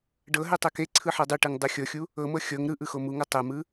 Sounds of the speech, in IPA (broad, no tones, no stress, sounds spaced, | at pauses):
ɖ ɤ ɦ e tˤ ɛ k e ǀʰ ɯ ħ ɤ dˤ u ʈ ɯ ŋ dˤ ɯ xʲ ɤ xʲ u | ɤ m ɤ xʲ ɤ ŋ ɾ ɯ ʔ ɯ x o m u ŋ ɤ tˤ ɛ m ɯ